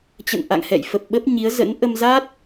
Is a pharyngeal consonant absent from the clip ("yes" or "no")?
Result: yes